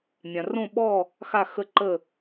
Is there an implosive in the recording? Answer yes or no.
yes